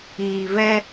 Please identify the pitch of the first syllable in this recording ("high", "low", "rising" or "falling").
low